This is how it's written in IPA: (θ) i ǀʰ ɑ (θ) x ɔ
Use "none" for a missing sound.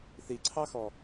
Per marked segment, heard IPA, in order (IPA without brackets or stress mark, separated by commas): θ, none